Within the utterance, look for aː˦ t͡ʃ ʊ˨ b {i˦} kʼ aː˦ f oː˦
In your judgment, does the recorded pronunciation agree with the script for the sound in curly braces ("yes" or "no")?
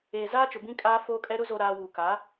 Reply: no